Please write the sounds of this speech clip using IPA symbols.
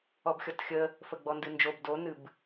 ɔ b xʲ ɔ t xʲ ə | f ə ɡ͡b ɔ n d ɨ n d͡ʒ o b d o n ɨ b

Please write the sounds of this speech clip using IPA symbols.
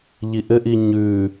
ʎ i ʔ ɘ ʔ i ɲ ʉ

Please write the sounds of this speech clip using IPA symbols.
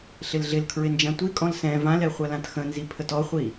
ɬ ɪ l ɮ ɪ l kʰ ɹ ɪ n d͡ʒ ã tʷ i kʼ ɔ̃ l s ɛ̃ v ã l ɛ χʷ a l ã t x ə̃ n z i pʰ ə t ɔ χʷ i

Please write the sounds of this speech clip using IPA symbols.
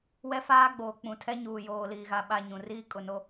w ɛ˦ f aː˦ ɡ͡b oː˨ k͡p ũ˨ tʰ ɛ˦ ɲ uː˨ j oː˨ l iː˨ ɣ a˨ ɓ a˨ ɲ ũ˨ r iː˦ kʼ ʊ˨ n o˦

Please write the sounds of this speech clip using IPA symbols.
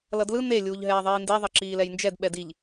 l ʌ d l ɯ n e lʲ uː ʎ ɦ ɛː ðˤ iː n d e ðˤ ʌ ǁ iː l ɛ j n d͡ʒ ɛ d ɓ ɛ d i ʎ

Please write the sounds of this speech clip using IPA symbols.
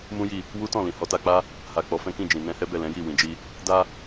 m ũ˦ j i˦˨ | w u˦ t ɔ̃˦˨ l ĩ˨ h ɔ˨˦ t a˧ k͡p a˦ | h a˨ k͡p ɔ˨˦ f ɛ̃˦ k ĩ˦˨ d͡ʒ ĩ˨ n ɛ̃˧ h ɛ˦ b ɛ˦˨ l ɛ̃˨˦ j i˦˨ w ĩ˨ d͡ʒ i˧ | d a˦

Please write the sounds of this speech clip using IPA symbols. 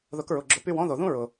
ð ʊ˨˦ k ɹ ʊ˩˧˩ ɡ͡ǁ ʊ˧˩˧ p y˦˨ w ɔ̃˥ ð o˩ ð ũ˥ ɹ ʊ˩

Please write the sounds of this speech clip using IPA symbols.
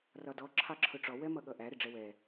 r ɒ d ɔ ǁʰ ɑ ǁʰ ʊ ʈ͡ʂ ɔ w ɛ m ʌ ɠ ʌ ʔ æ ɾ ɪ ɖ͡ʐ ɛ w ɛ

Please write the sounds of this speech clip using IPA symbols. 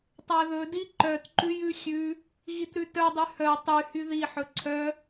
tˤ æ ð ɵ d i ǃ œ t ǃ ʉ j ʉ xʲ ʉ | ɣ i t ɾ ʉ t œ dˤ y h œ tˤ y h y ð i ħ ɵ ǀʰ œ

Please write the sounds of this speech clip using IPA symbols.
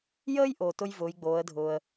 j əː˥ j ʔ o˩ t ʊ˥ j v ʊː˩˧ j ɡ͡b oː˩˧ ə̯ dʱ ʊː˩ ə̯

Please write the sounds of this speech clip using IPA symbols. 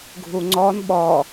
ɡʱ u ŋ͡ǀ ɔ n ɓ ɔ

